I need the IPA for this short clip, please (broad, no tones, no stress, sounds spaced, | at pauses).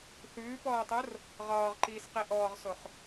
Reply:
θ ʉː p ɔː tˤ o r | ʁ ɒː ʁ ǃ iː s q i ʔ ɔː ʁ s o χ